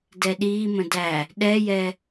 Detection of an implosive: present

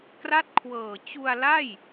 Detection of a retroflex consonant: absent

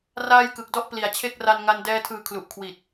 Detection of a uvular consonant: absent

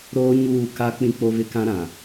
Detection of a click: absent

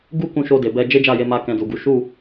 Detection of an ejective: absent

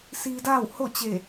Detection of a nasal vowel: absent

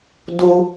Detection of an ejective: absent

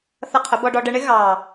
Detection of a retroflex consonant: present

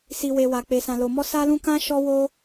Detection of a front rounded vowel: absent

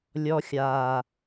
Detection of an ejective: absent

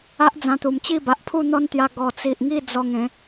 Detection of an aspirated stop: present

